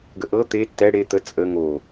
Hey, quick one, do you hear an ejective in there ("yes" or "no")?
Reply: yes